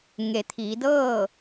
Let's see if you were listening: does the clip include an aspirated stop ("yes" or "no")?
yes